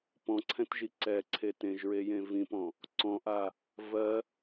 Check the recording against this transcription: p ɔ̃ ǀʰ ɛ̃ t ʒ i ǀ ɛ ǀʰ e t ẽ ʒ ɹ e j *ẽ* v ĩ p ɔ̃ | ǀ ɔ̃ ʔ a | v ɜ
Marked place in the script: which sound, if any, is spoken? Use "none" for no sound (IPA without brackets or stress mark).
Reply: ẽ